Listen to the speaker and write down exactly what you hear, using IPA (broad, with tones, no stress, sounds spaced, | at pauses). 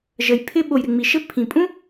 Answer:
ʒ ə˩ j pʰ ɪ˧ ɓ o˩ j ɾ ɪ˩ ŋ͡m i˩ ʃ ɘ˥ pʰ ĩ˩ pʼ ũ˥